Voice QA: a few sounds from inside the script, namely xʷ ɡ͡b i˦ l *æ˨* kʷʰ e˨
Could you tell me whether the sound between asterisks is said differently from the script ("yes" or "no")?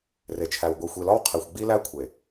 yes